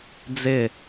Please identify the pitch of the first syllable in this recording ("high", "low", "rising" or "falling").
falling